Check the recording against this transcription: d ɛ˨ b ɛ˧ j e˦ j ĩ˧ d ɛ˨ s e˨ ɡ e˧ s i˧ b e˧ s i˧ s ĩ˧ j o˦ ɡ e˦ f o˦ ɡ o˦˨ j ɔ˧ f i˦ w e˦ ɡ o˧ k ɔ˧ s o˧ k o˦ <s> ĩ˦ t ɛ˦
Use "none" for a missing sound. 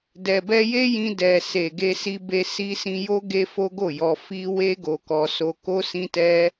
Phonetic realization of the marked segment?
s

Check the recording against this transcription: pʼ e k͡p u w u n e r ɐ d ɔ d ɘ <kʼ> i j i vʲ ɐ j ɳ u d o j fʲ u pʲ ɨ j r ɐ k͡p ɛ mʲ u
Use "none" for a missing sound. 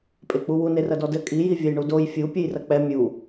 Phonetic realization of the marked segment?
kʼ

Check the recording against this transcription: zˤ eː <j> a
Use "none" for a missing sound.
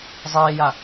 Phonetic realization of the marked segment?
j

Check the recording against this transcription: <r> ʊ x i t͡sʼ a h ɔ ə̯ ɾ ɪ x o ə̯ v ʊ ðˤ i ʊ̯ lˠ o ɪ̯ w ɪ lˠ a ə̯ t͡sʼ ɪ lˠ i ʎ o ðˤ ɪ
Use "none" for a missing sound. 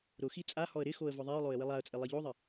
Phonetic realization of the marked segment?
ɾ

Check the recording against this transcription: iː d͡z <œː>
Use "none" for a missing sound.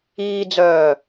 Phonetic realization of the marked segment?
œː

